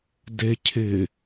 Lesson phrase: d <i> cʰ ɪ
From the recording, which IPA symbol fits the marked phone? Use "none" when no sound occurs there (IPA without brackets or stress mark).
e